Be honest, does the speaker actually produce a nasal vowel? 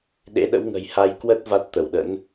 no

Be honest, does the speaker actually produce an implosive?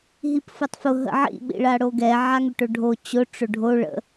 yes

